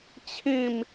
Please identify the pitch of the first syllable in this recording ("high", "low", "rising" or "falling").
falling